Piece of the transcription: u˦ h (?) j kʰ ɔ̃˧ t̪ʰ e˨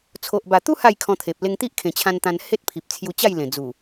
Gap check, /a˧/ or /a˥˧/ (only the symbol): a˥˧